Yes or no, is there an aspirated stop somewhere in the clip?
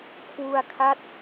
yes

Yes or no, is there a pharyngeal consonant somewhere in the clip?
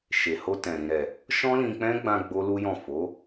no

